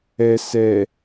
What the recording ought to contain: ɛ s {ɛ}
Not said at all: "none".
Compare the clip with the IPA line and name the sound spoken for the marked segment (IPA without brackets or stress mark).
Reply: ɛ